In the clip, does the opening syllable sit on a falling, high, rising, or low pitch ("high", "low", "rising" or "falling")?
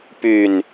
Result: falling